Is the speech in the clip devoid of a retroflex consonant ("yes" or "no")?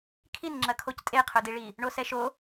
no